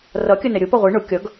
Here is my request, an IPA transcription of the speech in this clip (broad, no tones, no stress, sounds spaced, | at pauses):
r ʌ kʲ ə n ɛ ɾʲ ʊ p ʌ ʁʷ i ɳ ʊ kʲ ʌ ɡ